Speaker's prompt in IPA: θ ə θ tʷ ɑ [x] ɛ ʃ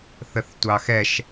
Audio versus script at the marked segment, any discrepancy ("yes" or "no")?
no